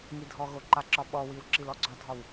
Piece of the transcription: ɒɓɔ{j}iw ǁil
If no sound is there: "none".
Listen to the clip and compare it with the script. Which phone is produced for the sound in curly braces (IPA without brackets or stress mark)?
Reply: w